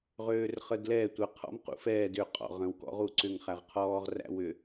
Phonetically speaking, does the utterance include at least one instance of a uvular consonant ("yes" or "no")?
yes